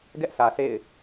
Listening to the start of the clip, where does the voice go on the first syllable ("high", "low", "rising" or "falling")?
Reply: high